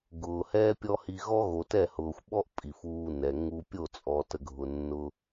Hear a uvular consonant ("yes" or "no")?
no